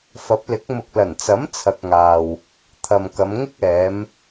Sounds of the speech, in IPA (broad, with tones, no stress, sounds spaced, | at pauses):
f ɐ˨˥ p̚ l ɪ˨˥ k̚ m ʊ˨ k̚ l ɐ˨˩ n t͡s ɐ˨˥ m t͡sʰ ɐ˧ k̚ ŋ aː˨ w | t̪ʰ ɐ˨ m k ɐ˨˧ m ŋ ɪ˥ k̚ ɛː˨˧ m